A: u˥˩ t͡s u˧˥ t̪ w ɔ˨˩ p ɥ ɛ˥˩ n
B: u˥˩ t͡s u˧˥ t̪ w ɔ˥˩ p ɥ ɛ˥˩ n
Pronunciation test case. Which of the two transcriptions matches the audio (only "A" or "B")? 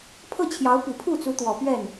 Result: A